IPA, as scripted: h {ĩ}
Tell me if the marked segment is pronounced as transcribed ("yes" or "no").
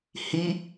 no